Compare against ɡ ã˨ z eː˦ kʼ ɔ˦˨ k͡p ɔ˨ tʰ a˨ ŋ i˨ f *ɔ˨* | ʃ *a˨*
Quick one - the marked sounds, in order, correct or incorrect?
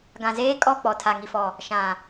correct, incorrect: ã˨

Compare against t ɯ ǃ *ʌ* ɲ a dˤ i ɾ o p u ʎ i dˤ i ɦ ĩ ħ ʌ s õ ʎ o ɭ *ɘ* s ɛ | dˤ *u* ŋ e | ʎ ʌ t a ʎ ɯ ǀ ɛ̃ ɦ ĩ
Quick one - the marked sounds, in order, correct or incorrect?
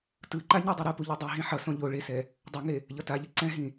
incorrect: a, incorrect: e, correct

